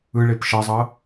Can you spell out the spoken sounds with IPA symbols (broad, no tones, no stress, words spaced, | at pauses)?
ɯɭep ʃʌzˤʌ